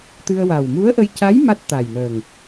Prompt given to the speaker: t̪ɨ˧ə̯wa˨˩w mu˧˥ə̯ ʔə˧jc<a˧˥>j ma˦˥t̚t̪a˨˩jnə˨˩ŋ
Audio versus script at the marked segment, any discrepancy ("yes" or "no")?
no